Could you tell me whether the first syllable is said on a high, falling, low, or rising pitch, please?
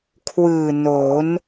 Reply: low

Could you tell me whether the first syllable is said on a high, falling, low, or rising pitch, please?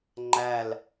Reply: falling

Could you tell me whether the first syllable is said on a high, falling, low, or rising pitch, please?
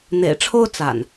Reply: low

